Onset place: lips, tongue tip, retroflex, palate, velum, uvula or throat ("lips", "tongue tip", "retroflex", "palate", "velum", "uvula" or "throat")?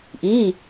throat